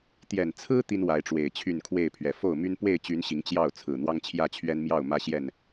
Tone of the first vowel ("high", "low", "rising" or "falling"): low